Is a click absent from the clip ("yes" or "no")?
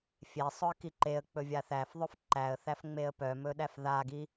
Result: no